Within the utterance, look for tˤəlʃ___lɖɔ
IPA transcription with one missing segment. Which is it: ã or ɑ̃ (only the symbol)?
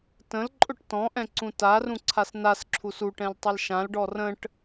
ã